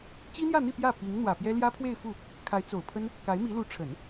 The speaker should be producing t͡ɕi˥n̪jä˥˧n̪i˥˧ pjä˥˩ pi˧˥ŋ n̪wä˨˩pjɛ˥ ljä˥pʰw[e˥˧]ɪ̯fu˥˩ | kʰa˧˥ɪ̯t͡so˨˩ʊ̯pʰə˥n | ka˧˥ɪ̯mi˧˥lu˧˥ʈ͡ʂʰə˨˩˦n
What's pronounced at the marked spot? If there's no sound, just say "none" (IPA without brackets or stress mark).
e˥˧